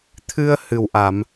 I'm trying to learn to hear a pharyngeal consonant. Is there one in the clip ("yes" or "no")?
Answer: no